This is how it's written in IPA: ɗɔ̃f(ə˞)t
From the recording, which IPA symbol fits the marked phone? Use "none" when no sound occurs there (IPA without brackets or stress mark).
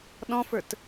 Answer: ə˞